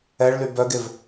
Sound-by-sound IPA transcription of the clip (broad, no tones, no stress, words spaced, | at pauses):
ɛɭly bœɡev